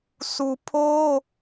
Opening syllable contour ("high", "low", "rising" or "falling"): low